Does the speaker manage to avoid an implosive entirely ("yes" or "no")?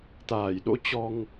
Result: no